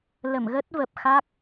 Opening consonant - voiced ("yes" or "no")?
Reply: yes